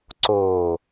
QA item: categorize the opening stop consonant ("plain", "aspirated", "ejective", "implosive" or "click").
click